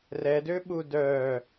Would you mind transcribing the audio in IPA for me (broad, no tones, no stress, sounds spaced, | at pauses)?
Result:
r ɛ d ø ɓ u d œ